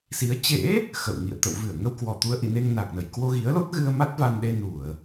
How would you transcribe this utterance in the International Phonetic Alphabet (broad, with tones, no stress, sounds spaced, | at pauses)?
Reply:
s i˨˦ ə̯ t͡ɕ ḛ˧˥ | x ə̰˧˨ w ŋ ḭ˧˨ ə̯ t̪ ə̰˧˨ w v ɨ˧˩ ə̯ ŋ ə˧ w k w ɔ˧˩ t̪ u˨˦ ə̯ ʔ ḭ˧˨ n e˧ ŋ n a˨˩ k̚ n ə˧˩ j k w o˧ ɣ i˨˦ ə̯ l o˦˥ t̚ ɣ ɨ˧ ə̯ m a˦˥ t̚ v a˧ n ɗ e˧ n u˧˩˨ ə̯